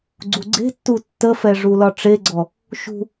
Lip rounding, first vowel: rounded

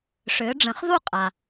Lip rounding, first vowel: rounded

